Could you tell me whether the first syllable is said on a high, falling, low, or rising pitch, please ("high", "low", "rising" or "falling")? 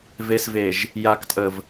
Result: low